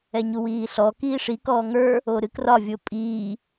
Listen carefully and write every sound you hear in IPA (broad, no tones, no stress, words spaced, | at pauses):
ɛɲuwiːɬɔ kiːʂikɔː ŋə˞ | oɾɨkrɒvʲo pʼiː